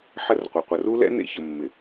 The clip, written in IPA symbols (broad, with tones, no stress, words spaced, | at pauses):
ħə˦rqʷɯ˨ qʷɐ˨ru˦lɛ̰˦ nḛ˦ çə˨mːɪ˨